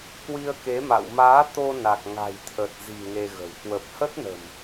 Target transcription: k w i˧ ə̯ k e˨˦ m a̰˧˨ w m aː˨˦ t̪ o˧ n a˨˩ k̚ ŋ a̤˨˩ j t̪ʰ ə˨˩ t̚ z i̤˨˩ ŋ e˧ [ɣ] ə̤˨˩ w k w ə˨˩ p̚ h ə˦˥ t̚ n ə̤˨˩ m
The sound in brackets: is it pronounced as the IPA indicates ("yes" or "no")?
yes